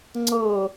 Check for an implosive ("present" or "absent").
absent